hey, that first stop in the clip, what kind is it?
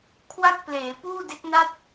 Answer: aspirated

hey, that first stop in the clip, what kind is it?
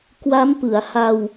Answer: plain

